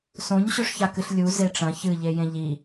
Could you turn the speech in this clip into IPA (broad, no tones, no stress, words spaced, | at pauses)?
sõɲ ɕɵʂçakɨɬlʲu zeʈ͡ʂɐ̃ çɨ ʎejẽʎi